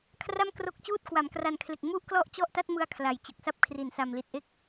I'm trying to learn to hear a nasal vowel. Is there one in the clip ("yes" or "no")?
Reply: no